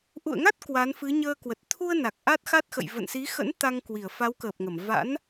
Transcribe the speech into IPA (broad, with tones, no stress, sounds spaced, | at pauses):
ʔ ṵ˧˨ ə̯ ŋ a˦˥ t̚ k w a˨˦ n f ɨ˨˦ ɲ əː˧ k w ə˨˩ t̚ t̪ʰ u˧ ə̯ n a˨˩ k̚ ʔ a˦˥ t̚ x a˦˥ t̚ x ə̰˧˨ j v ə̰˧˨ n s i˨˦ x ə̰˧˥ n t̪ a˧ ŋ k w i˧˩ ə̯ f a˨˦ w k əː˨˩ p̚ ŋ ə˧˩ m v a̰˧˥ n